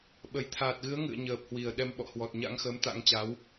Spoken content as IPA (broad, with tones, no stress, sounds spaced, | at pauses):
ɓ ə˧˩ j t̪ʰ aː˨˩ t̚ ɣ ɨ˨˦ ə̯ ŋ ɨ̰˧˨ ə̯ ɲ əː˨˩ p̚ h w i˧˩ ə̯ ɗ ɛ˧ m ɓ ɔ̰˧˨ h w ɔ˨˩ t̚ ɲ a̰˧˥ ŋ x əː˨˦ m t̪ a̰˧˥ ŋ t͡ɕ a˨˦ w